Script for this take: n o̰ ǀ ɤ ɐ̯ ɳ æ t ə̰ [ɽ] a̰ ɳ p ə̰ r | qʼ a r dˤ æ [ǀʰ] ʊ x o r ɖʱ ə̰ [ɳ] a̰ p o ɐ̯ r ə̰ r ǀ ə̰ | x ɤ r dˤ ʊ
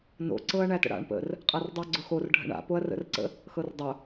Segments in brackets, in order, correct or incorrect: correct, incorrect: ɡ͡ǀ, correct

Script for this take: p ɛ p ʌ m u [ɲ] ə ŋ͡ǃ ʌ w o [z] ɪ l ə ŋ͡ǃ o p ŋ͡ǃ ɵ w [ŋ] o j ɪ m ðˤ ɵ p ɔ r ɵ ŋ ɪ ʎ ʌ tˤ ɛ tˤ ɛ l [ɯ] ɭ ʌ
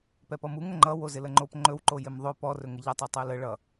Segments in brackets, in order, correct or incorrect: incorrect: ŋ, correct, incorrect: ǃ, incorrect: ə

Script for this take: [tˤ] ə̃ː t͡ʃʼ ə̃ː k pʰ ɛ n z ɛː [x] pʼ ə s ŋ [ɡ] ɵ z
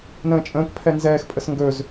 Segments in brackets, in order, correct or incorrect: incorrect: n, correct, correct

